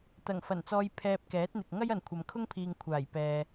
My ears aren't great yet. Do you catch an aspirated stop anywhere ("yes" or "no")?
yes